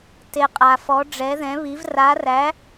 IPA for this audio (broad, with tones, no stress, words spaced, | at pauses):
te˧qʼa˧fɔ˧˥ ɖ͡ʐɛ˧˥ðɛ̃˧˥βi˧˥v ra˧˥ræ˧˥